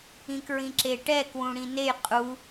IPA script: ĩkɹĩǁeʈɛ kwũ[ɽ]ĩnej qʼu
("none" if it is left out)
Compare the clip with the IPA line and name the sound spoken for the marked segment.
ɽ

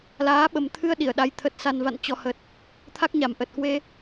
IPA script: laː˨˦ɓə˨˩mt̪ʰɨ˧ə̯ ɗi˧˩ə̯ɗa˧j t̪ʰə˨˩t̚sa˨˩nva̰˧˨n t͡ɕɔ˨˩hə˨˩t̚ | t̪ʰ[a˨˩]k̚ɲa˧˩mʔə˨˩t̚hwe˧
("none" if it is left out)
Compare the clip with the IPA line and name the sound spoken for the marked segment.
a˦˥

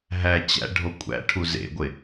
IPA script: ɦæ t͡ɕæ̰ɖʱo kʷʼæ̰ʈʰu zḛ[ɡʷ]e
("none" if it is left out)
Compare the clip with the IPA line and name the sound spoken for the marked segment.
ɡʷ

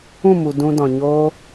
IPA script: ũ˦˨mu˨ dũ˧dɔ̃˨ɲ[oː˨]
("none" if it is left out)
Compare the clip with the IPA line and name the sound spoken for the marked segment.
oː˦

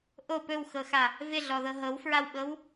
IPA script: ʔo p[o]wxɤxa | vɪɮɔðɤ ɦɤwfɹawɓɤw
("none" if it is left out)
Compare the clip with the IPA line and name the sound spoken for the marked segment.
ɵ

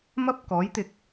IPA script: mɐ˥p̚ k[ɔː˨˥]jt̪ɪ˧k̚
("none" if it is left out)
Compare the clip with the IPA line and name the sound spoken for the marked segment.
ɔː˨˥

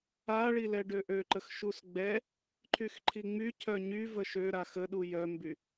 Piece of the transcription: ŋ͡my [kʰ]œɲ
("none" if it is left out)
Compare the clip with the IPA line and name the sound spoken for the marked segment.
cʰ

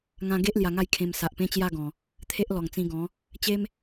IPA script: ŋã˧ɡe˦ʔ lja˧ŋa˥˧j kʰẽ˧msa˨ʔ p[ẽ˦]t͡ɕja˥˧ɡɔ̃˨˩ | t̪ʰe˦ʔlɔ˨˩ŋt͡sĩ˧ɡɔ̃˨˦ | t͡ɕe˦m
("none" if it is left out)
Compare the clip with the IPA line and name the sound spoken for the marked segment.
ẽ˦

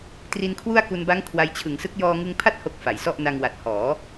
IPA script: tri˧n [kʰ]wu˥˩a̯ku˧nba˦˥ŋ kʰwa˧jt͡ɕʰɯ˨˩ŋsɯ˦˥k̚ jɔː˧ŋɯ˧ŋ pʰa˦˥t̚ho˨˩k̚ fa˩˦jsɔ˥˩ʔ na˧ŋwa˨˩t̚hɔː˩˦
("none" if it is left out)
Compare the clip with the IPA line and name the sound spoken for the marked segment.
kʰ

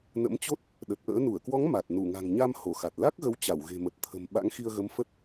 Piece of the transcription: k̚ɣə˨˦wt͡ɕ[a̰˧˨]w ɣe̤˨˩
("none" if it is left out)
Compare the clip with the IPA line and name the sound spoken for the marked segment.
a˧˩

